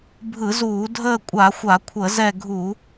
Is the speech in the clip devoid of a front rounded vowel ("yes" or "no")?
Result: yes